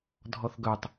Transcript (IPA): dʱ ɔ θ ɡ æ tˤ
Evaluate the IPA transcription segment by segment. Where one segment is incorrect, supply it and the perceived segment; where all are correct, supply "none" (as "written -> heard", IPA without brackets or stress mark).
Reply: æ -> œ